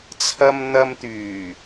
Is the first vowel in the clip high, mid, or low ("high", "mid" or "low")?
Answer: low